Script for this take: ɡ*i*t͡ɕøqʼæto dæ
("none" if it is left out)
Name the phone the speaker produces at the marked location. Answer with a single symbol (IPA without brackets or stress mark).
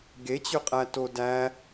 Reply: e